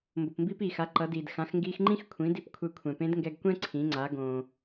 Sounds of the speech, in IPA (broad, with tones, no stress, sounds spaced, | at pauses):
m b o˩ p m b iː˧ p iː˩ x a˩˧ ǃ ʌ˩˧ d iː˩ d x ã˩˧ x ŋ ɡ iː˧ x ŋ͡ǃ ĩ˥ x kʷʰ ĩ˩˧ d i˧ p kʷʰ e˧ kʷʰ ɛ̃˩ p ẽ˧˥ d ŋ ɡ ɛ˧ ɡ kʷ ɛ̃˥ ǀʰ ĩ˩˧ ŋ͡ǀ a˩˧ ɡ õː˩